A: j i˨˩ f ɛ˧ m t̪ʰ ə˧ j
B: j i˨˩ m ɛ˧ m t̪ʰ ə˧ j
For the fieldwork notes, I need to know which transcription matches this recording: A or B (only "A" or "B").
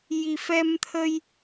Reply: A